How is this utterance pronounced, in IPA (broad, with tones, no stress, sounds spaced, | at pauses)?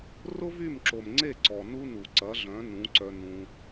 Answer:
r ʊ˦ v y˦˨ m ǁ o˨ m ŋ͡ǀ e˦˨ ǀ ɔ˨ n u˦ n u˨ ǀ ɐ˨˦ ɮ œ̃˨˦ n ũ˨˦ ǀ œ˧ n ũ˧